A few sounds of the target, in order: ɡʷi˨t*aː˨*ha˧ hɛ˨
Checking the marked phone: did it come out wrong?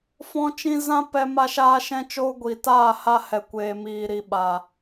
yes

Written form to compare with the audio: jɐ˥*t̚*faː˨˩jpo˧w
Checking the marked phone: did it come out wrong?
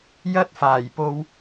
no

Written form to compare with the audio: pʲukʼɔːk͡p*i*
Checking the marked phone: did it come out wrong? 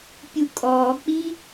no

